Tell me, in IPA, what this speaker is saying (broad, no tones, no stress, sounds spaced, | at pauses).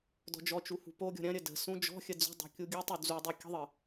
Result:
d ɔ̤ d͡ʒ ɔ t͡ʃ u h ṳ p o ɡʲ ɔ̤ ɾʲ ɐ̃ ɾʲ ə d ə̤ s ũ d͡ʒ ɔ̤ xʲ ə d͡z ṳ dˤ ṳ kʲ u ɡʲ u tˤ u d͡z u dˤ u kʲ ə̤ ðˤ ə